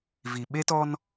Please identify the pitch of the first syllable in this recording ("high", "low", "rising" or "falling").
low